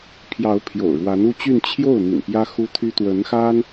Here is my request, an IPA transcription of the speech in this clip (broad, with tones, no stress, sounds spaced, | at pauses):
pʰ j ɑ˧˥ ʊ̯ pʰ j o̰˨˩ ʊ̯ ɻ w a˧˥ n u˥˧ t͡ɕ y˥˧ n t͡ɕʰ j o˥˩ ʊ̯ n̪ ḭ˨˩ n p j ä˥ x u˥ t̪ʰ y˥ t̪ w ə˧˥ n x a˥ n